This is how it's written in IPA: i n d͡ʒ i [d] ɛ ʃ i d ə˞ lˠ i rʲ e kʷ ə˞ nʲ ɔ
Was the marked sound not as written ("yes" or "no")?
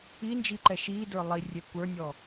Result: yes